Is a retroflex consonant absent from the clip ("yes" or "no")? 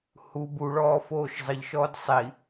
no